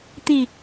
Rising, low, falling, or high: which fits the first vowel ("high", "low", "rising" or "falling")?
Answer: falling